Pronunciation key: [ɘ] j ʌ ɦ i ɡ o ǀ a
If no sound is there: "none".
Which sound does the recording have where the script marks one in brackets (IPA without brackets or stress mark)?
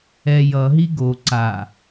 ɛ